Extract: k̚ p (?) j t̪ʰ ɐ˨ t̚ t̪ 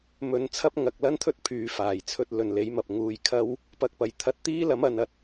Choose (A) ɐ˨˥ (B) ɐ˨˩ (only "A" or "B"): B